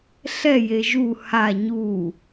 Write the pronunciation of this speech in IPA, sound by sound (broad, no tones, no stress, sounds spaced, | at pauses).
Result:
ɬ ɛ j e ʒ u h a ɲ u